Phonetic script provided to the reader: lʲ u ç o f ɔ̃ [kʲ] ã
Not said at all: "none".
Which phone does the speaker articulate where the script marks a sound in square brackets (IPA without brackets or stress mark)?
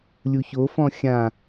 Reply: xʲ